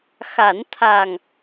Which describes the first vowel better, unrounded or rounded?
unrounded